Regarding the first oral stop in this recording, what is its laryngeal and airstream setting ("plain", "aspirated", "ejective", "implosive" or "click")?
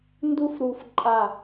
plain